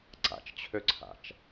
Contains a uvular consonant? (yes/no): no